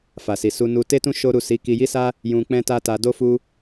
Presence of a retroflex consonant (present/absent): absent